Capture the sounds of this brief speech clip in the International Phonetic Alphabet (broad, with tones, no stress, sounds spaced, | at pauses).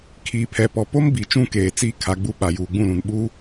kʰ iː˨ pʰ ɛ˨ p ɔ˨ p o˦ m b i˨ t͡ʃ ũ˦ k eː˨ t͡s i˦˨ kʰ a˨ ɡ͡b u˦ ɓ a˨ j uː˨ ɡ͡b ũ˦˨ l ũ˨ n ɓ uː˦